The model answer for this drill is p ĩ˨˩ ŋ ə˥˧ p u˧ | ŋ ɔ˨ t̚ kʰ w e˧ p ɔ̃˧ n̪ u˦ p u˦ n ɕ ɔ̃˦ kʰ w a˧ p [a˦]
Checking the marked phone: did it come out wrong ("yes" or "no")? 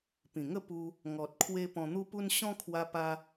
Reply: yes